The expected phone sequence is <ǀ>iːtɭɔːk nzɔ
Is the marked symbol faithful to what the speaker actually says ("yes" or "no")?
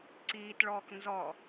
yes